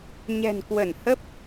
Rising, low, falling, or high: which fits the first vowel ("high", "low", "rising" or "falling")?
low